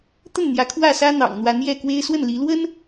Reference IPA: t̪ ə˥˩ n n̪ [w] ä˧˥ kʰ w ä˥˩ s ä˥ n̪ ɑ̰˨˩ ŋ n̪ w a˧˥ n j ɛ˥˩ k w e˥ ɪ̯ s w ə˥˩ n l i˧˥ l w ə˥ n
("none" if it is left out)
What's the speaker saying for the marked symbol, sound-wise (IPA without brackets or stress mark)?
j